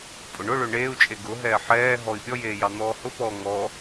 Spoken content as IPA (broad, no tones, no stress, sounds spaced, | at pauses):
pʼ ʊ ɳ ʊ ɭ ø ɳ eː u̯ t͡ʃʼ e ɡ ʊ ɦ ɛː ħ ɛː ɦ ɔ i̯ pʲ ɔ j eː j ɑ n̪ ɔː h ʊ p ɔː ŋ ɔ